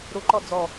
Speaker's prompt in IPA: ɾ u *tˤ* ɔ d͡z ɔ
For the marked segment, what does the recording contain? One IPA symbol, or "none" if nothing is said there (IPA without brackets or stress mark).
ǃ